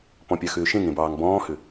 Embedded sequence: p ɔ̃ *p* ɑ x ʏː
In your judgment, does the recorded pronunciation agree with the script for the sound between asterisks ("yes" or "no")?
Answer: no